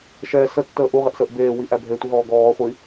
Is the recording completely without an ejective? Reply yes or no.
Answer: yes